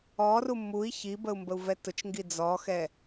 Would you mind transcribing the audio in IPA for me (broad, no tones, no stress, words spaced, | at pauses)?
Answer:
ɔru mui̯ çibəu̯mbəu̯vɛ tʊt͡ʃŋɡi d͡zɔxɛ